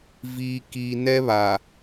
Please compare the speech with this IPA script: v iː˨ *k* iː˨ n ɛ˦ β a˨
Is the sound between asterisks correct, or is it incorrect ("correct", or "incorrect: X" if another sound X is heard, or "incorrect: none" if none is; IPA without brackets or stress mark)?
correct